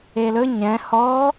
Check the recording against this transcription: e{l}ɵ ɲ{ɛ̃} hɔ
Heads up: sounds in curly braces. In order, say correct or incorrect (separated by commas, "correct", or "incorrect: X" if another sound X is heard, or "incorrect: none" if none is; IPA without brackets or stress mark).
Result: correct, correct